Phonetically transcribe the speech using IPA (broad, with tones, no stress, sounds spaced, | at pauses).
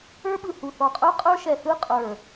ə˞˦˥ ɓ ɯ˧˩ h u˧˩ θ ɔ˧˩ qʼ ə˞˦˥ qʼ ə˞˦˥ ʃ ɛ˧˩ θ ɯ˦˥ qʼ ə˞˧˩